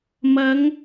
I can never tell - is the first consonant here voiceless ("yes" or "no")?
no